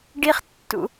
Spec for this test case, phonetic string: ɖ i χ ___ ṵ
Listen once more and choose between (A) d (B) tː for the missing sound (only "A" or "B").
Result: B